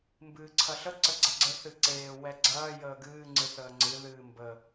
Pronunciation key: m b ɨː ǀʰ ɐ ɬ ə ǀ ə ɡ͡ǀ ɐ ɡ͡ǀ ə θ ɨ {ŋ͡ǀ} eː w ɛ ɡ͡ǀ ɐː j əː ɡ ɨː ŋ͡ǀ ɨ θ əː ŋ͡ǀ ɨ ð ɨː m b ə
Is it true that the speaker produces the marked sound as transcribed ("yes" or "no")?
no